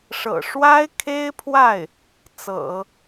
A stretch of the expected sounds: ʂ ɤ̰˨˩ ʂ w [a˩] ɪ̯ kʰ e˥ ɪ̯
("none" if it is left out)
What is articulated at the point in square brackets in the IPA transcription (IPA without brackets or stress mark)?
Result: a˥